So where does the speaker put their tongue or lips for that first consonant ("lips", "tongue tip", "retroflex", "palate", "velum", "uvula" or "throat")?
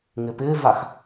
velum